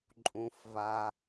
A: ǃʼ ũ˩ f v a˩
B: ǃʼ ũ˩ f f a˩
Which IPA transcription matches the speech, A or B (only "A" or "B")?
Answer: A